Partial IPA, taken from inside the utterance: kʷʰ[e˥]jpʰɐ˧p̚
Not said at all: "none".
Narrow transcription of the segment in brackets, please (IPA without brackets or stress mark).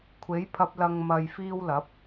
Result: e˨˥